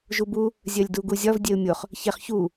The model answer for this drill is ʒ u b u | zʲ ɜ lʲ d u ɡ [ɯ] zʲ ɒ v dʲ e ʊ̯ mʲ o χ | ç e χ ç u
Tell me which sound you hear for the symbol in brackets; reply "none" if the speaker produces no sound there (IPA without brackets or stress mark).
u